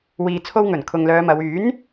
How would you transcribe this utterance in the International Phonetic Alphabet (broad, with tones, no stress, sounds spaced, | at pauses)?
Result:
w iː˨ t͡sʰ o˧ w ŋ ɵ˨˩ n kʰ ʊ˨ ŋ l œː˨˧ m ɐ˨˧ w yː˨˥ n